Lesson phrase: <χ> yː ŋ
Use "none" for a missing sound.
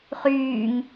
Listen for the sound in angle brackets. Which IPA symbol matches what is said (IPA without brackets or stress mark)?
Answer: χ